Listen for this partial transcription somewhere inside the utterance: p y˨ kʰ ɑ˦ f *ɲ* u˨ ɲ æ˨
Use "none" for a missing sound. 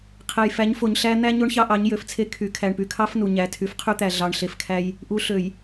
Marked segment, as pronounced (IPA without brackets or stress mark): n